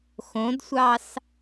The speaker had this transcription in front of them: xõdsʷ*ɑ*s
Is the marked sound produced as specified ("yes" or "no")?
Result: yes